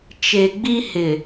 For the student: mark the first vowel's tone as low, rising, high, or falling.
low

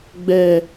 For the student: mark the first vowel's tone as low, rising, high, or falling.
low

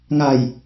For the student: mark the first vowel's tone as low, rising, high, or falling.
low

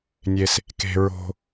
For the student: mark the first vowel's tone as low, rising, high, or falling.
low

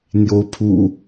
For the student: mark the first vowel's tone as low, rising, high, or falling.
rising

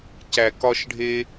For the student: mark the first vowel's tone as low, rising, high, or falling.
low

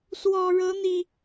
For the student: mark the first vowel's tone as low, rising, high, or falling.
low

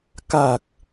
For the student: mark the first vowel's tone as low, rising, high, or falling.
low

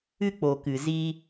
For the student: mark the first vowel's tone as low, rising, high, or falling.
high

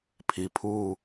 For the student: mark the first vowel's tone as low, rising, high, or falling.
low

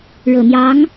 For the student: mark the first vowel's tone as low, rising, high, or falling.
low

